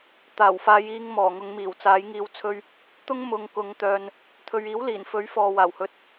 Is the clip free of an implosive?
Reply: yes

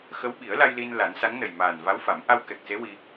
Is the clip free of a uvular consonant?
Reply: yes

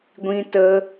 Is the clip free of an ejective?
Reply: yes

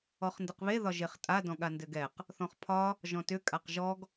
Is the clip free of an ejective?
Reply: no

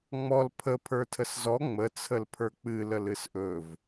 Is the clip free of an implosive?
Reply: yes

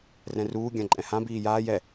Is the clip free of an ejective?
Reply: no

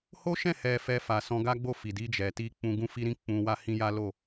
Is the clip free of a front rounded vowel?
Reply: yes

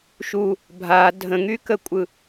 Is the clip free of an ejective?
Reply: no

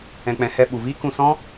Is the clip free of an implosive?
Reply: no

